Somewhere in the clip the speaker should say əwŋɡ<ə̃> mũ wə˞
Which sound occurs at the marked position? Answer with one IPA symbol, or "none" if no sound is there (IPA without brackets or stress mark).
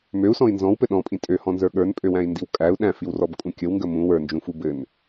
ə